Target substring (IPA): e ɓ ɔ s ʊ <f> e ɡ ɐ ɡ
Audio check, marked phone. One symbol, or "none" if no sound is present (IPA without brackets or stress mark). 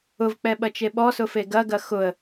f